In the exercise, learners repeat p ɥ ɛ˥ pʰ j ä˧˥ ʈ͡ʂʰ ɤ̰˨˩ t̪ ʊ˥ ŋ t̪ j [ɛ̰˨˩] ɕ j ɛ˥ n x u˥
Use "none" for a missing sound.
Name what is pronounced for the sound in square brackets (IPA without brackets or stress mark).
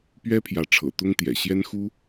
ɛ̰˨˩